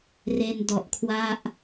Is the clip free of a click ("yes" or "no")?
yes